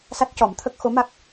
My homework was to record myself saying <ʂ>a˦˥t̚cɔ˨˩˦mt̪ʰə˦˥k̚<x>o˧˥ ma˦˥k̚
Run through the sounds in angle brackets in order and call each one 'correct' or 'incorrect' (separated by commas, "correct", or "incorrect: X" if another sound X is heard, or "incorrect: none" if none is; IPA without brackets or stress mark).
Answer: incorrect: s, correct